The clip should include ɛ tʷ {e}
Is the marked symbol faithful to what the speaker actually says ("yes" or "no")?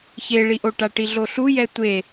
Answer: yes